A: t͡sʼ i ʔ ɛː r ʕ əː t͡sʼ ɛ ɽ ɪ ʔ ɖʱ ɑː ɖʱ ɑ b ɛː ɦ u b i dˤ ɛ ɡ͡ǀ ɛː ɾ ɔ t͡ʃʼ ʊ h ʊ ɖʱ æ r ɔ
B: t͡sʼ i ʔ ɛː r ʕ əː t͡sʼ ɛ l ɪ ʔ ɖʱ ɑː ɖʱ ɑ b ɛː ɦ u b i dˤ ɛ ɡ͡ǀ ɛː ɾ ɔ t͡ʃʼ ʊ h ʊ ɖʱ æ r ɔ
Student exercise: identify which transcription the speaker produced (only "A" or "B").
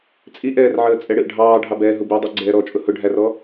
A